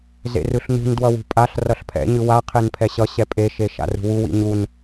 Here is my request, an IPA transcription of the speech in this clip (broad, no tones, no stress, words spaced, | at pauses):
zḛrɯɬnṳn dwʌwṳpʼaɬ rʌɬpʰɛ̰ ɲɯwa qʰenpʰɛɕʌ ɕɛpʼe ʃeʃa̰rṳwu wḭɲun